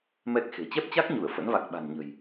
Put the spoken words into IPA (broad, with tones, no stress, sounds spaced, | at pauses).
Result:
m ɛ˦˥ k̚ x e̤˨˩ t͡ɕ ɛ˦˥ p̚ t͡ɕ a˦˥ k̚ ɲ u˧˩ ə̯ f ə̰˧˥ n v a˨˩ k̚ ɓ a̤˨˩ n ɲ ə̤˨˩ j